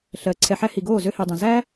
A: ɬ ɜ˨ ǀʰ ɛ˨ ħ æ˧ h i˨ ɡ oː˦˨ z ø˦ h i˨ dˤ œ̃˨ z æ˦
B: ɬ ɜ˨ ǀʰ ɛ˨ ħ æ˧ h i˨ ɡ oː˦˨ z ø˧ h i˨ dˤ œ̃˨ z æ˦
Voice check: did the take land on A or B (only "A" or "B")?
B